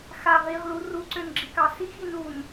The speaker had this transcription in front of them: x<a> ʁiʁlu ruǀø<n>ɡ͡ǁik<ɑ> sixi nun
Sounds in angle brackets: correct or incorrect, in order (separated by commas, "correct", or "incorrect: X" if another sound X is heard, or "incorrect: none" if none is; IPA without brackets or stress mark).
correct, correct, correct